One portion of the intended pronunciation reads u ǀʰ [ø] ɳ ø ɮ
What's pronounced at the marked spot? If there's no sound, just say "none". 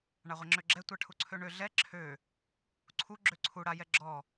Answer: ø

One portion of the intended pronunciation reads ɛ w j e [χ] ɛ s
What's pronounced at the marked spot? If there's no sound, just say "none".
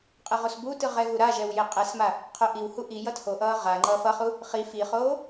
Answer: qʼ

